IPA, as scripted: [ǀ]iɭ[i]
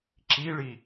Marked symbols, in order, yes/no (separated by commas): no, yes